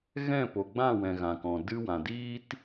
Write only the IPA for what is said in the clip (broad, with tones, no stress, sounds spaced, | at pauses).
ɣ ɛ̃˦˨ p o˨ ɡ͡b ã˦˨ w ɛ̃˨ ɣ ã˨ k ɔ̃˨ d ɨ˧ w ã˨ d iː˦ t